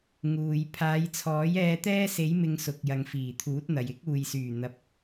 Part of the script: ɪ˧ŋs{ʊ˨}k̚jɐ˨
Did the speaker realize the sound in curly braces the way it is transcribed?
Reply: yes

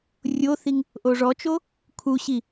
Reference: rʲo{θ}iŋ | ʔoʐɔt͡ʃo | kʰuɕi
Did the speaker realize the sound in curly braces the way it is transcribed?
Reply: yes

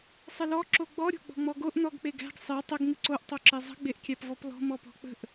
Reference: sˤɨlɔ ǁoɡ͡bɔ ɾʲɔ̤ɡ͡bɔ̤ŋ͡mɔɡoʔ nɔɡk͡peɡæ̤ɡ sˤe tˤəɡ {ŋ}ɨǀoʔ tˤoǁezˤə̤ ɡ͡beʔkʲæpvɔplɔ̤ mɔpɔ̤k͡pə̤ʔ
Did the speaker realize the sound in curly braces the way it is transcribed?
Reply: yes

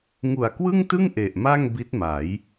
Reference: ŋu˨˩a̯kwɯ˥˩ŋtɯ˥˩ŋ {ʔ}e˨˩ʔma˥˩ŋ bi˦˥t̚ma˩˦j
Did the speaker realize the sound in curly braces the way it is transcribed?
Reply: yes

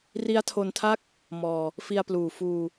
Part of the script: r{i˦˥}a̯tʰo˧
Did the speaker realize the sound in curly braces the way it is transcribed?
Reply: yes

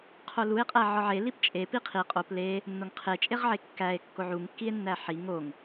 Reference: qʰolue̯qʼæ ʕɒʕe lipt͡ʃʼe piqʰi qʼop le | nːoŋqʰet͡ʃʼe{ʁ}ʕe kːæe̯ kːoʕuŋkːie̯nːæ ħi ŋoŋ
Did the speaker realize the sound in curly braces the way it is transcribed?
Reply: yes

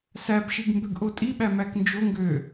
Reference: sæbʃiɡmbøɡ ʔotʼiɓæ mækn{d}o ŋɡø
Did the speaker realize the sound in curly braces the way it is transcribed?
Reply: no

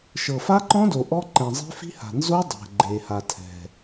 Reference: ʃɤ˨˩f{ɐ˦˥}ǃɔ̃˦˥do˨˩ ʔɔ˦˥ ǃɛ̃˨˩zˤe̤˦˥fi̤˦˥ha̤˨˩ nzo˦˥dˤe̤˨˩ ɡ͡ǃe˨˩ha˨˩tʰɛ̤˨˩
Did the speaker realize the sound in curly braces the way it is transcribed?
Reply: no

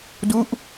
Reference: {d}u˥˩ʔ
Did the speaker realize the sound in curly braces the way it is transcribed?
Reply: yes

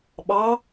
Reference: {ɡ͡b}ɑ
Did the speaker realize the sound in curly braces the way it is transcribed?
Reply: no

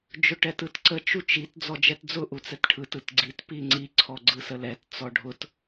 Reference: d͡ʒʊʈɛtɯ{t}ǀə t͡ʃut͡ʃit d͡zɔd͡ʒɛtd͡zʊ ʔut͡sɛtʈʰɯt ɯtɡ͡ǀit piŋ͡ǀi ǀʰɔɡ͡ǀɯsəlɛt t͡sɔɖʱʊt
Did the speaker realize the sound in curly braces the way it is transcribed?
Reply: yes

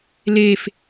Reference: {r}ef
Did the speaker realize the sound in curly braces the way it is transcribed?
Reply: no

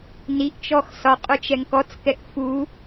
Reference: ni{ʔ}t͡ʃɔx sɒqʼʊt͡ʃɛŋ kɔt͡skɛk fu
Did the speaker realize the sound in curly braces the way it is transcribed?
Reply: yes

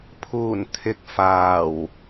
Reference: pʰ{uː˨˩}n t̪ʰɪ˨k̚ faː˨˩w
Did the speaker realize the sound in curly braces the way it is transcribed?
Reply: yes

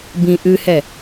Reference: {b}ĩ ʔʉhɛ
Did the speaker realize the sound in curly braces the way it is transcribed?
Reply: yes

